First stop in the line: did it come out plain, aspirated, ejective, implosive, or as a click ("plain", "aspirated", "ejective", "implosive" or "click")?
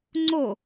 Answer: click